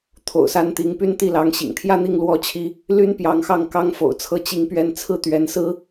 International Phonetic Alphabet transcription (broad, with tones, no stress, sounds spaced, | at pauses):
t̪ʰ o̰˨˩ ʊ̯ s a˥ n t̪ i˧˥ ŋ p y˥˧ n t̪ i˥˩ l ɑ˧˥ ŋ ɕ ḭ˨˩ ŋ t̪ʰ j ä˥˧ n̪ i˥˩ ŋ l w ɔ˥ t͡ɕʰ i˥ | l y˥ n p j ɑ˧˥ ŋ x ɑ˥˩ ŋ k ɑ˥ ŋ f o̰˨˩ ʊ̯ t͡sʰ ɤ˥˧ t͡ɕ i˥˧ ŋ p ɥ ɛ˥˧ n t͡sʰ ɹ̩˥˩ t̪ ɥ ɛ˧˥ n s ɹ̩˥